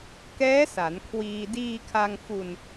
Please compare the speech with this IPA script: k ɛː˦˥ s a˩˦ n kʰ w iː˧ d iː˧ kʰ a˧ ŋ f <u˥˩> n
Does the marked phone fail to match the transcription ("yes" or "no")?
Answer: yes